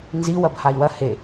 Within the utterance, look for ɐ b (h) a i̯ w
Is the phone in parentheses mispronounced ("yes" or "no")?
no